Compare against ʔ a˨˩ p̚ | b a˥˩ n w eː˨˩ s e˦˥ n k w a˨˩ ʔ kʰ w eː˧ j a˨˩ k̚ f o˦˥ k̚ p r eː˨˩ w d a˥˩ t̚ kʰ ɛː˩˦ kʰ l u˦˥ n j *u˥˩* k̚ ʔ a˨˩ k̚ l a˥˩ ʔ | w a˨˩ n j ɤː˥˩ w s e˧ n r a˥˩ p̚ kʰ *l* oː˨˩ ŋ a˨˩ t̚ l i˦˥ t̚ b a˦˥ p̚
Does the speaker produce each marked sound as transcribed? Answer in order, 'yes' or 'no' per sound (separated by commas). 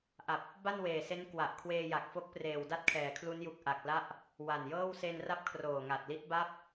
no, no